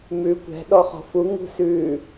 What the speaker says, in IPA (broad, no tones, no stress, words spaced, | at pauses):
mʉ kʷɛ̤ ɗɔχɔ̤fu ŋṳsʉ